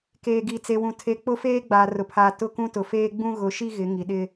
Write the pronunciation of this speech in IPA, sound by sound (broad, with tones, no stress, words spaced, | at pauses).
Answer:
keː˨ɡi˨t͡se˨wũ˨ tʰe˨ k͡pʊ˦feː˦ ɡ͡baː˨rʊ˨pʰaː˨ tʊ˦˨kũ˦tʊ˨feː˦ ɡ͡bũ˦ɣʊ˨˦ʃi˦ ɣɪ˨˦ ŋi˨ɗɪ˦